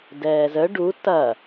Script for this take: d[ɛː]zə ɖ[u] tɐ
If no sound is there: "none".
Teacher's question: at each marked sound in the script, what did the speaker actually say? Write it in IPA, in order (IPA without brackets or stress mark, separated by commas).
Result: ɛː, u